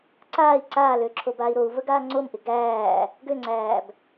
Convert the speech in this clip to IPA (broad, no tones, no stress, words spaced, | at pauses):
ǀaːi̯ ǀaːlø ǁʰobaːi̯ɾou̯və ɡaːŋ͡ǀomʔɪ ɡæː | ɡøŋ͡ǀæːb